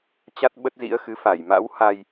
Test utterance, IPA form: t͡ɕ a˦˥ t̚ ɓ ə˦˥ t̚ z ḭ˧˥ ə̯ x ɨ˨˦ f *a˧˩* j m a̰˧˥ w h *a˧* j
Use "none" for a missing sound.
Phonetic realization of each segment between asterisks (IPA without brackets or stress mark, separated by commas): a˧˩, a˧